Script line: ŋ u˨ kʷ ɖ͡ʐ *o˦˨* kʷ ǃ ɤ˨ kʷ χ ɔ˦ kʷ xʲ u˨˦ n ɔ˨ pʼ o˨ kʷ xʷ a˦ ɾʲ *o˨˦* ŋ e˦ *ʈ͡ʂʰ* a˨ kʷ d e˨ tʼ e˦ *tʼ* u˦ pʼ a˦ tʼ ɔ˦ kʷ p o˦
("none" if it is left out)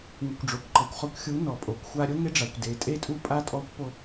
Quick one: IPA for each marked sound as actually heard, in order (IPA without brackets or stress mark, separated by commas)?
o˨, o˦, ɖ͡ʐ, tʼ